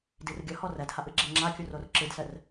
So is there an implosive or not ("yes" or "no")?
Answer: no